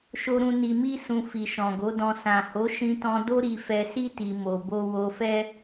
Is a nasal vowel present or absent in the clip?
present